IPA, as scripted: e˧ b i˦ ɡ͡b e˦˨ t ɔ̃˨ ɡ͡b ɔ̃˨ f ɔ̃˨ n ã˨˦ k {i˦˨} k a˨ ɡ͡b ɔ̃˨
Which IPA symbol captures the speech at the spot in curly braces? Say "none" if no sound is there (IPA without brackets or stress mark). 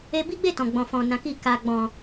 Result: i˦˨